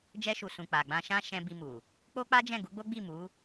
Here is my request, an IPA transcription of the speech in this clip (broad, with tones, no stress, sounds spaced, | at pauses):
d͡ʒ ɛ˧ ʃ u˨ s ũ˨ k͡p a˨ ɡ͡b ã˧ ʃ ã˦ ʃ ɛ̃˧ b i˧ m u˨ | k͡p o˦ k͡p a˦ d͡ʒ ɛ̃˦˨ ɡ u˨˦ ɡ͡b o˦ ɡ͡b i˦˨ m u˨˦